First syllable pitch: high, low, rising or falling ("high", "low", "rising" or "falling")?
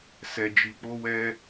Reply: low